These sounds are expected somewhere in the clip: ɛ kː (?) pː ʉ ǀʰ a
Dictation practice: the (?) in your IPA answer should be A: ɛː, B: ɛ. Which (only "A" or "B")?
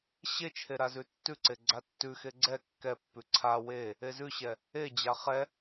B